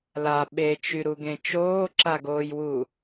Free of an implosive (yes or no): no